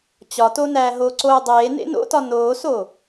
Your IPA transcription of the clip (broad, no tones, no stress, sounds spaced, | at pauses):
t͡ɕ ɒ t o n æː ɦ o ǀ oː dˤ eː n ḛ n o̰ t ɒ n oː s oː